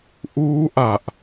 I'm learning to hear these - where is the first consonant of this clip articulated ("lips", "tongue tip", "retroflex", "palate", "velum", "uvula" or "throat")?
throat